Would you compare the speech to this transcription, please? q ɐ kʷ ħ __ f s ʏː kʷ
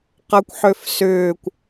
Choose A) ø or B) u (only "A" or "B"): A